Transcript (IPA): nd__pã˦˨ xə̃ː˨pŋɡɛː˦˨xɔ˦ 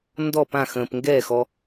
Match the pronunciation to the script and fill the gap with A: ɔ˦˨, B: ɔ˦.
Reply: A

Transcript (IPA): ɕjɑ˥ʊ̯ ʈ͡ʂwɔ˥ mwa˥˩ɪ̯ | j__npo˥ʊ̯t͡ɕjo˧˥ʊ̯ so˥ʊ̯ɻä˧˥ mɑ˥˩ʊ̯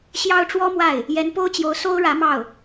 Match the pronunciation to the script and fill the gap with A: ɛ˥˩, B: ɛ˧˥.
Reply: B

